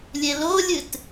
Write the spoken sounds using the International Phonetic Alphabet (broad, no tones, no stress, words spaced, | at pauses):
lʲelolʲɨt